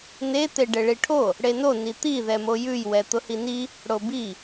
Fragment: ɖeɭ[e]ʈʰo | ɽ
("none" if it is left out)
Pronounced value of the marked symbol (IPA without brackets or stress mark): i